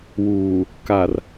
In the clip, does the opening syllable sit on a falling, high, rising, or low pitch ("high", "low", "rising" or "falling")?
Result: low